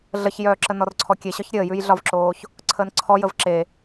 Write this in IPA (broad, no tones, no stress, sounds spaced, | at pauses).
ɮ ə ç j œː ǁ ə n ɔ r ǀʰ ɔ kʲ e ɕ ɒ ç ɾʲ əː j ʉ j ɮ ɒ v ǁ oː ç | ǀʰ əː n ǀʰ ɔ j ə v ǁ e